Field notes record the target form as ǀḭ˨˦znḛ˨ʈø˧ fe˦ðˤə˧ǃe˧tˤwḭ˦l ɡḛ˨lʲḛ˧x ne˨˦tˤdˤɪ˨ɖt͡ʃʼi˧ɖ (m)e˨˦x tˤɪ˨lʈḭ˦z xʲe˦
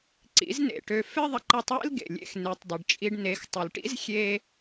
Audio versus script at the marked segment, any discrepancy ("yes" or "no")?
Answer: yes